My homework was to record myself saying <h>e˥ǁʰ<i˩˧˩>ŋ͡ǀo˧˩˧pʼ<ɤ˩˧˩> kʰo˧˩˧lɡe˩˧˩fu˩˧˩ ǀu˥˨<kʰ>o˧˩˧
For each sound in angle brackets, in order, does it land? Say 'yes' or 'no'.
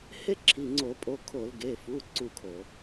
yes, yes, no, yes

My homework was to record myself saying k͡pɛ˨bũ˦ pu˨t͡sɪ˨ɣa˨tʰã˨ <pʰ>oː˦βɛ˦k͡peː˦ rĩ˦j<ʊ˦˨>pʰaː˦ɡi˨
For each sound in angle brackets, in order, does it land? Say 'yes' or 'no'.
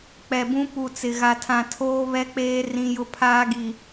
no, no

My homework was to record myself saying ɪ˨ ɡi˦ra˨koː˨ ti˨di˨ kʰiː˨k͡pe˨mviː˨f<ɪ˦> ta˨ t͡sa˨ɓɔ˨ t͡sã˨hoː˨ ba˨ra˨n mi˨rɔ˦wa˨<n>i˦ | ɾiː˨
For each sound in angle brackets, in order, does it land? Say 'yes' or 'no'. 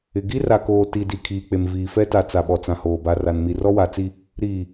no, no

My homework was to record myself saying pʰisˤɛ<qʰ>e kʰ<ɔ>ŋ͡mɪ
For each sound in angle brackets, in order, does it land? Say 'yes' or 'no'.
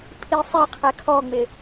yes, yes

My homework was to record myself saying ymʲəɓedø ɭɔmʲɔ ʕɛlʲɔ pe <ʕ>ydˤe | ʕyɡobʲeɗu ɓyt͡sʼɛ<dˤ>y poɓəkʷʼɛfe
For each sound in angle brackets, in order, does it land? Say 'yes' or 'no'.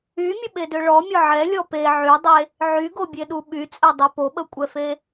yes, yes

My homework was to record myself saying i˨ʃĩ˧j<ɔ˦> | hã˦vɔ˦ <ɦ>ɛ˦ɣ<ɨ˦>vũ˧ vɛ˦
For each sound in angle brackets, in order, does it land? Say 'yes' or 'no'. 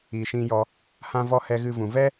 no, no, yes

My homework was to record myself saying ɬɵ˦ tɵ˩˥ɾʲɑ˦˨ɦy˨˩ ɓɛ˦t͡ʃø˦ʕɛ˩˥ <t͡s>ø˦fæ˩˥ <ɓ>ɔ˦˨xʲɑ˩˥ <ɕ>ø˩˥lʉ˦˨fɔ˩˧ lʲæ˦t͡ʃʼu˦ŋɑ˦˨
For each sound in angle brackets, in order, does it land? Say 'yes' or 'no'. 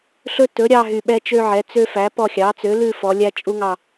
yes, no, no

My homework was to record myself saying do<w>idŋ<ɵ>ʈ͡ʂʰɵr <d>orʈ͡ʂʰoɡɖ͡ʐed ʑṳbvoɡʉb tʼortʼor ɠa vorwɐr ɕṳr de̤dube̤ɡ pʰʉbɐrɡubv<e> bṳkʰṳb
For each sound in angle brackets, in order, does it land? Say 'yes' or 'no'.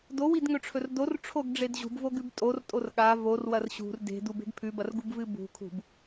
yes, yes, yes, no

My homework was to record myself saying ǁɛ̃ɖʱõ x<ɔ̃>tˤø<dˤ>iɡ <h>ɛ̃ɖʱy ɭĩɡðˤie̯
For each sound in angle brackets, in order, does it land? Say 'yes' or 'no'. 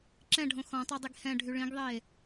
yes, yes, yes

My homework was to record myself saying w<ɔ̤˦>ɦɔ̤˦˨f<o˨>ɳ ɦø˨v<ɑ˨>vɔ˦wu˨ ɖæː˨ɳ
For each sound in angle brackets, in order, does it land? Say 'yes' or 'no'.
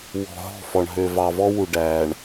no, no, yes

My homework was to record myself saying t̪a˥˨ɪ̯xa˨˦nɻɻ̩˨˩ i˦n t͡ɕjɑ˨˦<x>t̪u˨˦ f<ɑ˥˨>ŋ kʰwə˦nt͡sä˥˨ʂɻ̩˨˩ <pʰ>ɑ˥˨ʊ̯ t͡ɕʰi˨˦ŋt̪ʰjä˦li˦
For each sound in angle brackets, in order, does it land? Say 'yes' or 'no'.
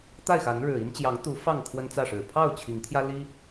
no, yes, yes

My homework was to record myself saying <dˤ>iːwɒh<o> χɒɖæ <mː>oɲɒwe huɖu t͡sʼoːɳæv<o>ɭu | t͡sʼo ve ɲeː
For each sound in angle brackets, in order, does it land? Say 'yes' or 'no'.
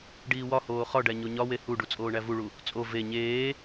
no, no, no, no

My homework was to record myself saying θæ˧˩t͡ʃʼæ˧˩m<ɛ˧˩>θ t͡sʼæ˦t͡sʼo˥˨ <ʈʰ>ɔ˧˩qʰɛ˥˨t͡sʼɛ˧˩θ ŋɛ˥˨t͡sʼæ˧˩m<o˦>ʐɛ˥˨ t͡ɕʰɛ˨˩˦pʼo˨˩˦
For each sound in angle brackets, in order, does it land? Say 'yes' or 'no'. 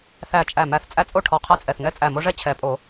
no, yes, yes

